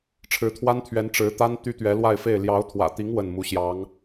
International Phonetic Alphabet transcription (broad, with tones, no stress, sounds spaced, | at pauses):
ʈ͡ʂʰ ɻ̩˧˥ t̪ʰ w a˥ n t̪ʰ ɥ ɛ˧˥ n ʈ͡ʂ ɻ̩˧˥ t̪ a˥ n t̪ y˥ t̪ ɥ ɛ˧˥ l w a˥˧ ɪ̯ f e˥˩ ɪ̯ l j ɑ˧˥ ʊ̯ t̪ʰ w ä̰˨˩ t̪ i˧˥ ŋ w ə˥˩ n m u˧˥ ɕ j ɑ˧˥ ŋ